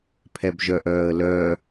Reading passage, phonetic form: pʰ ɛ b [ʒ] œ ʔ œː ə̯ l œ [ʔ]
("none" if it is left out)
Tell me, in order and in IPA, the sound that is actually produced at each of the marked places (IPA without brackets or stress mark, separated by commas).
ʒ, none